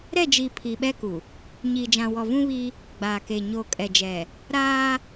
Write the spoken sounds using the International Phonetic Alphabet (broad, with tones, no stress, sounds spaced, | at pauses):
ɾ ɛ˦˨ d͡ʒ iː˨ pʰ i˨ ɓ ɛ˦ k u˨ | ɲ iː˨ d͡ʒ ã˨ w ɔ˨ v ũ˦ β i˦ | ɡ͡b aː˨ k e˨ ɲ oː˨ kʼ ɛ˨ d͡ʒ ɛ˨ | ɾ aː˦